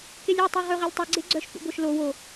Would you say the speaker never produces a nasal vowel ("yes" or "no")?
yes